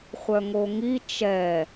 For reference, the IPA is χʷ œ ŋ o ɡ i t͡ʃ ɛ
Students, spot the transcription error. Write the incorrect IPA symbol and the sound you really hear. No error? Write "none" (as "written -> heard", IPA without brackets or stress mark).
ɡ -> ŋ